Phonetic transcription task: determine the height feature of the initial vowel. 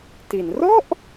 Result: high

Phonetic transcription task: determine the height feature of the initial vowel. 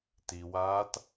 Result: high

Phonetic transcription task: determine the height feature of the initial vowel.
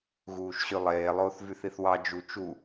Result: high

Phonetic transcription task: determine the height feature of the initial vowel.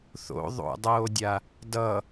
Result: mid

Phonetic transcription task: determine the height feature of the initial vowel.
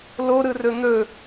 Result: mid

